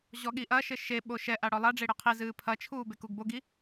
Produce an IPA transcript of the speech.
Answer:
ʑ ɔ ɠ i ʔ ɐ ʃ ɘ ʃ e ɓ o ʃ ɛ ʔ a ɽ ɔ lˠ a ɖ͡ʐ e ɽ ɛ qʰ i z ɨː pʰ ɐ t͡ʃʰ uː b e k u ɡ b o ɡ i

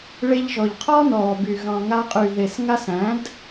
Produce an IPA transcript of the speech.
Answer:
ɭ e˧ ʎ ʒ ɔ˨ ʎ qʰ ɔ˦ n ɔː˨ b y˨ ɣ ɑ̃˨ ŋ a˧ qʼ y˨ ð e˨ s ŋ a˧ s æ̃˨˦ d

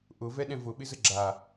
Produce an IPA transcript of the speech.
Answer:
ʔ ʊ v ɛ ɗ ɛ̃ v ʊ ɓ ɪ z ə ɡ͡ǁ a

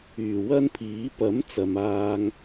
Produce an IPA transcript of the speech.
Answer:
yː˨˩ w ɐ˥ n pʰ iː˨˥ p ɐ˨˥ m t͡s ɐ˨ m aː˧ ŋ

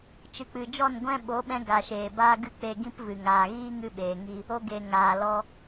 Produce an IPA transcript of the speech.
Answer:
t͡ʃ ɨ˨ k͡p ɨ˨ d͡ʒ ɔ˦˨ n ɡʷ ɛ̃˦ ɓ o˨˦ ɓ ɛ̃˧ ɡ a˨ ʃ eː˨ b aː˦ ɡ ɨ˦˨ k͡p e˧ ɡ ĩ˦ p v ɨ˨ ŋ aː˨ ɣ iː˦ ŋ ɨ˧ ɓ eː˨ ŋ i˧ | o˧ ɡ e˨ ŋ aː˨ l ɔ˧

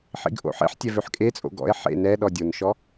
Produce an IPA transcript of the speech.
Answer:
ħ ḭ ɡ ʔ o̰ ħ ḛ ħ tʲ ɛ v ø ħ kʼ e t͡sʼ o̰ ɡ ɔ̰ e̯ ħ ḛ n ɛ ɗ ɔ dʲ o n ʃ ɔ

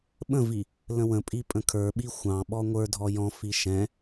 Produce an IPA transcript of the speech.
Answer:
ɓ ə̃ v i | l ə̃ w ə̃ pʼ i pʼ ə̃ kʰ ə˞ ɓ i xʷ ɑ̃ ɓ ɔ ŋʷ ə˞ dʱ ɔ j ɔ̃ f i ʃ ɛ̃

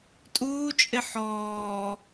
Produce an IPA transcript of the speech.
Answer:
tʼ uː t͡ʃʼ ɪ ħ ɔː

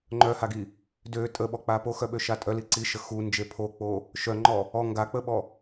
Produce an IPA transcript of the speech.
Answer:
ŋ͡ǃ œ h a ɡ i | d ø tʼ ə ɓ ɔ k͡p a p o x œ ɓ ø ʃ a tʼ œ l i ǀ i ʃ ə x u n d͡ʒ e pʰ o k͡p o | ʃ œ ŋ͡ǃ ɔ | ɔ ŋ ɡ a k͡p ə ɓ ɔ

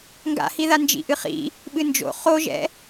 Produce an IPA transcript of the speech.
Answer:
ŋ ɡ a̰ h i ð a n d͡ʒ ḭ ʔ ɨ χ ḭ | ɓ ɨ n d͡ʒ o̰ χ o ʒ ɛ̰

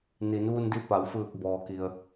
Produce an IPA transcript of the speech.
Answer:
n i˩˧ n ʋ u˧ n d i˧ p a˩˧ w f ɯː˧˩ k̚ b ɔː˩ k i˩ ə̯

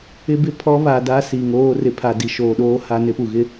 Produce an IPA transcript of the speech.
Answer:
ɪ˦ b ɪ˦˨ pʰ ɔ˦ β a˨ d a˦ s i˨ ŋ oː˦ r ɪ˨ pʰ a˨ d i˨ ʃ oː˨ ɗ oː˦ h a˦ n ɪ˦ p u˨ ɣ ɪ˦

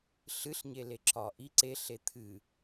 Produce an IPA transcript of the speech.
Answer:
ɬ ɨ ɬ ɲ e l e ǁ ɒ ʔ i ǀ e ɬ e t̪ʰ ɨ

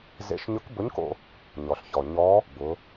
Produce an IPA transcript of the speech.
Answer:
z ḛ˧˥ ʃ ɲ ʊ˧˥ k b ʊ˧˥ ɲ k o̰˧ | ɲ ɔ˩ ɬ ç ɔ˩ ɲ ɔ˧˥ | b ʊ˩˧

